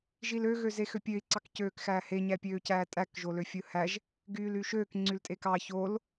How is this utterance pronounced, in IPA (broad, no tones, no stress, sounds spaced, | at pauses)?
ʒ i l ø ɣ ø z e x ø pʲ ø i̯ ǀ ɑ k c øː k x æː h e ɲ æ pʲ øː c æː tʼ æ k ʒ o l ø fʲ ɯ h æ ʒ | ɡ yː l y ʃ øː k ŋ͡ǀ y l tʼ e k ɑ ç o l